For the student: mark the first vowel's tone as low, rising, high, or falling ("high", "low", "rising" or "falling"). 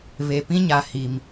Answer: low